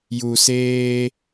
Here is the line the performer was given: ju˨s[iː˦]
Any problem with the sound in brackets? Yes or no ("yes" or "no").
yes